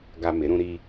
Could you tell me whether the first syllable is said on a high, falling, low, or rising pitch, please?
high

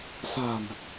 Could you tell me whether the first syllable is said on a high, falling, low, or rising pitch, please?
low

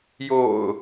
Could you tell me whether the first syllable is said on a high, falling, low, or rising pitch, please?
low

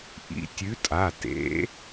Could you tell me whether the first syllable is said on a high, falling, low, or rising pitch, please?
rising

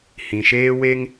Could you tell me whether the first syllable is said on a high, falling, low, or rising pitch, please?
low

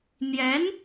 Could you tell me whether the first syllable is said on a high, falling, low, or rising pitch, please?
rising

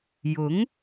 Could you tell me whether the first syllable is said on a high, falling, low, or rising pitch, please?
rising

